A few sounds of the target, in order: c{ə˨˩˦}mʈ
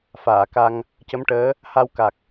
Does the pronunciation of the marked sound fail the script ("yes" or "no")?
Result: yes